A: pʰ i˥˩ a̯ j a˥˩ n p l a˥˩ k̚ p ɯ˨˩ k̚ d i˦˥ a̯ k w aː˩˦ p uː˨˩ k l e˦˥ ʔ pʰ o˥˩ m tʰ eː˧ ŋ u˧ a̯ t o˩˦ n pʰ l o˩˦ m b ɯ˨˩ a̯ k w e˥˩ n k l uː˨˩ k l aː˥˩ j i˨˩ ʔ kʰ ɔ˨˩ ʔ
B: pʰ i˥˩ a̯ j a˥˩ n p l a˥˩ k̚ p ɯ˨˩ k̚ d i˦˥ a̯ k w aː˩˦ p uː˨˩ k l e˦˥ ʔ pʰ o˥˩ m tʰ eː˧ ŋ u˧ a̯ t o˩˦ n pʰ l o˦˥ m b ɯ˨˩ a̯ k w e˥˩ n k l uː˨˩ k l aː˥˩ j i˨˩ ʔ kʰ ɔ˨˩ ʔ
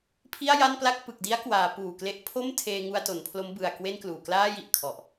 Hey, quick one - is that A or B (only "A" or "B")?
B